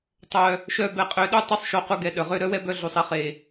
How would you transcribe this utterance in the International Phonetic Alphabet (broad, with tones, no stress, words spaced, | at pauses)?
tˤœ˨ | ʃœ˧bɛ˨qʼø˨˦ɗu˦ tˤu˦sˤʃo˧qu˧ ɡɛ˧ɗœ˨ʁø˦ ɾœ˦wɛ˦bœ˧ ɮu˨sˤi˦ χe˨